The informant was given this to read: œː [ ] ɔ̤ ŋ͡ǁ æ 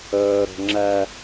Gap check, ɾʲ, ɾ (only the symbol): ɾ